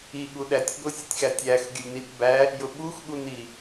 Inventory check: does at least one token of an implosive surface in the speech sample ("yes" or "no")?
yes